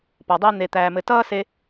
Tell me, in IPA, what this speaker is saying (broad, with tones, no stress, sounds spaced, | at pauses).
p ɔ˨ dˤ ɛ˦ n̪ e˨ t̪ æː˨ m ɘ˨ t ʌː˦ s e˧